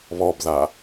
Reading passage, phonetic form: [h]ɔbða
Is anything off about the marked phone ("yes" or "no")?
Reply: yes